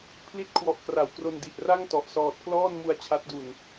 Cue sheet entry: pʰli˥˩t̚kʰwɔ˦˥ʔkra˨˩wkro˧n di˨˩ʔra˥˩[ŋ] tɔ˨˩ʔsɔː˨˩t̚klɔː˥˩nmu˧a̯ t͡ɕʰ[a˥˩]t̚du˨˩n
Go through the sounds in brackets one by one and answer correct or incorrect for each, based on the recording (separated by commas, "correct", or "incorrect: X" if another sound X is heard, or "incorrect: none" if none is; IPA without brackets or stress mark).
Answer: correct, incorrect: a˦˥